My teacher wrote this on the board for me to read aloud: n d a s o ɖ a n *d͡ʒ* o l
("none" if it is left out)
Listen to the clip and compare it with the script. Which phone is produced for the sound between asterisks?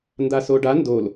d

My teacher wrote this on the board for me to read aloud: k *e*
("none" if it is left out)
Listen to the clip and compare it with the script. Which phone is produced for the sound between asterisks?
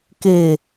e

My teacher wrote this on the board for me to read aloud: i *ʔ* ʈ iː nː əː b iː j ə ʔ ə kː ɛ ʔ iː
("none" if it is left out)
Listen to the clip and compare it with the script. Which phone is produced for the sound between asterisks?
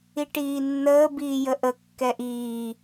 none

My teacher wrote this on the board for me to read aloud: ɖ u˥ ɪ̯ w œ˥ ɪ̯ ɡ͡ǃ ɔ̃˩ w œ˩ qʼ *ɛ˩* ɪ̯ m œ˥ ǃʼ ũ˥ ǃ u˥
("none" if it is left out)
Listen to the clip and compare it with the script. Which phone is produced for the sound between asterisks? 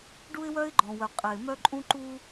ɛ˩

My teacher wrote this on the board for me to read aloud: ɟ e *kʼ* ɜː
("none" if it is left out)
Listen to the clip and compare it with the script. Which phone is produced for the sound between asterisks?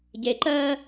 ǃ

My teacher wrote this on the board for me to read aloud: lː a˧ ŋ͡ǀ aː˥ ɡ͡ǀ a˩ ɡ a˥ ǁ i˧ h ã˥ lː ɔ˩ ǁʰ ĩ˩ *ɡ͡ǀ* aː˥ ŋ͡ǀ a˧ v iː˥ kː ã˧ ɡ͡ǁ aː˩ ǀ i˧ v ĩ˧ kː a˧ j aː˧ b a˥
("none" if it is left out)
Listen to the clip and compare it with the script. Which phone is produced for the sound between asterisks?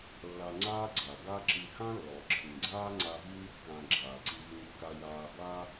ɡ͡ǀ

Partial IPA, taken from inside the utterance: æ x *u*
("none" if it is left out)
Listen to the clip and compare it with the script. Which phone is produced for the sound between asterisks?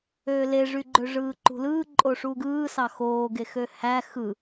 ɯ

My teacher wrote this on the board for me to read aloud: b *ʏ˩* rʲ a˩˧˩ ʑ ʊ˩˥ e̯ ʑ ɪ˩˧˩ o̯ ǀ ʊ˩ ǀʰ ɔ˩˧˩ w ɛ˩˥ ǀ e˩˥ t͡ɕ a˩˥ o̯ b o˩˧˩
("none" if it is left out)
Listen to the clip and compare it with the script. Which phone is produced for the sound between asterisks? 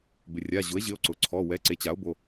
ɪ˩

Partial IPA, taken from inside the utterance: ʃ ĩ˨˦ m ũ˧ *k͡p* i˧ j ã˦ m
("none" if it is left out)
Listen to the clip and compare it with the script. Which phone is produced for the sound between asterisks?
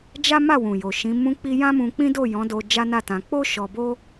k͡p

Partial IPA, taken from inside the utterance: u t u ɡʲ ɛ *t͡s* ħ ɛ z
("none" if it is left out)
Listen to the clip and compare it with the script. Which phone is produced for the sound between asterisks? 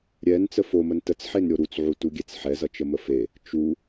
t͡s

